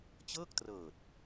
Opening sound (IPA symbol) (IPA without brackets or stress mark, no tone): t͡ɕ